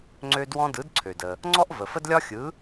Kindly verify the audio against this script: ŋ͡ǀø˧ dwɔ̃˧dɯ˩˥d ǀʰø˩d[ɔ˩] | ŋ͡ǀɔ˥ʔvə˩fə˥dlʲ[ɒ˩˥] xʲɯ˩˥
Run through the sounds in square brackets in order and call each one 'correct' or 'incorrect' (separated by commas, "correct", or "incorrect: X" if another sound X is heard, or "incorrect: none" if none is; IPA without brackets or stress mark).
incorrect: ə˩, incorrect: ɒ˥